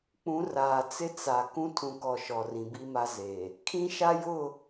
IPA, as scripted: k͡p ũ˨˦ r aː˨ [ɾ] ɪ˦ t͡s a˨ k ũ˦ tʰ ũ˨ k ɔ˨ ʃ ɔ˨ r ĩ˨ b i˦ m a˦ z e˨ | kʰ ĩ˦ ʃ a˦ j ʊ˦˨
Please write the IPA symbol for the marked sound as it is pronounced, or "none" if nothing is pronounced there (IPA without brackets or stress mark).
t͡s